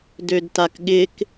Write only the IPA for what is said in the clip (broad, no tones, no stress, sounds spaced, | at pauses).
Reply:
d ø d t a k ɠ ɪ k